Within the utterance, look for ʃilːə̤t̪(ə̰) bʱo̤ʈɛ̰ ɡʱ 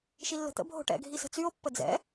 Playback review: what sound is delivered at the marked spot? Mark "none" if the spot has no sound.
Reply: ə̰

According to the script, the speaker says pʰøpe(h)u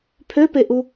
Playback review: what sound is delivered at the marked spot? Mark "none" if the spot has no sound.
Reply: ʔ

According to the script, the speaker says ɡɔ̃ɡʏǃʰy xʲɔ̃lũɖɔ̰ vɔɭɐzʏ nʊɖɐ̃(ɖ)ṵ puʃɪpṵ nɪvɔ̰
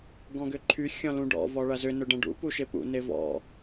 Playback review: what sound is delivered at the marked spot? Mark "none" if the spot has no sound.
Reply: ɖ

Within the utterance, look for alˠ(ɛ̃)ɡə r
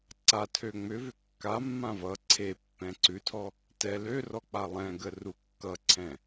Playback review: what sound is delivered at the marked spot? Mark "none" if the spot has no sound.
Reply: ɛ̃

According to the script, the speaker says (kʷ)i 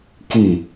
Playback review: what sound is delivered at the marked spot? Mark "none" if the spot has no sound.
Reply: k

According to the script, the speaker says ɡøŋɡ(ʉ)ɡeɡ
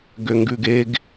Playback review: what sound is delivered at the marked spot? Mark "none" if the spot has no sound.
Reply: ʉ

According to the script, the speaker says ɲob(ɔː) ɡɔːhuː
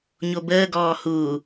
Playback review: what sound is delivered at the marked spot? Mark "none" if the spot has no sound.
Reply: əː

